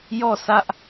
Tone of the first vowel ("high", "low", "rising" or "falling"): falling